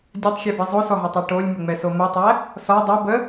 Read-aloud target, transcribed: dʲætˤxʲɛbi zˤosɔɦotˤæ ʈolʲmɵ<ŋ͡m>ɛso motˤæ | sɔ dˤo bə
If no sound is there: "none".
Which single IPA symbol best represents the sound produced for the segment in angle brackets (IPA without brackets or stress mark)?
ŋ͡m